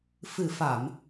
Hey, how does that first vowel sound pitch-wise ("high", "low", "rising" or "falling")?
low